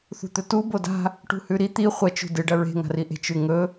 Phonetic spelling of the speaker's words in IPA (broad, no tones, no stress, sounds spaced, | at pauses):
θ ṳ t̪ ɵ t u b o d a̤ | ʈ ṳ h ʉ ɾ i t̪ i χʷ ɐ t͡ʃ ṳ d ɨ ɖ ɐ ɹ e̤ ŋ a̤ r i ʔ e̤ t͡ʃ ʉ ŋ ɵ